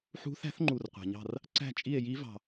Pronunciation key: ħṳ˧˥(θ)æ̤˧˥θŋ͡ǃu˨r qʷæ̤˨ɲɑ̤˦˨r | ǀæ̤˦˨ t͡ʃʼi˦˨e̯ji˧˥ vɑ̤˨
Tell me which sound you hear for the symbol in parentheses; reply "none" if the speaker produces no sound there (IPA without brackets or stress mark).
θ